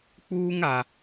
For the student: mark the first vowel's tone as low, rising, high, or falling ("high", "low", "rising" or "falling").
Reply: high